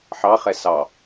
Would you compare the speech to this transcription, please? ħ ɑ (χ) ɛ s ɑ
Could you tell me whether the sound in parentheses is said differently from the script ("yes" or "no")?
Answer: no